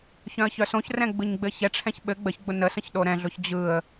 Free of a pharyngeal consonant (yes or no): yes